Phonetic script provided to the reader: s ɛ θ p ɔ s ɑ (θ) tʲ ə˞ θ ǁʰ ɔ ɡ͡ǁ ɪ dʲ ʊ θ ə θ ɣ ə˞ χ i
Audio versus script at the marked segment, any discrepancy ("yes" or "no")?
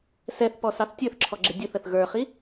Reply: no